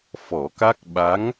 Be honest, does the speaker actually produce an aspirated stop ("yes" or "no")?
no